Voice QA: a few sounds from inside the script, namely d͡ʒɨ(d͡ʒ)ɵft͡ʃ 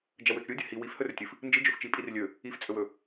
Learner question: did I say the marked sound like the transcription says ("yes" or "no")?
yes